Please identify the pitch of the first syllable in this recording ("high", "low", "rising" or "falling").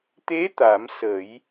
rising